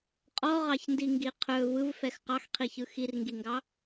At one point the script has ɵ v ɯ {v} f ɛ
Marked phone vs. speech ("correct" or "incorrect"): correct